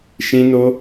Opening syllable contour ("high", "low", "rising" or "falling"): high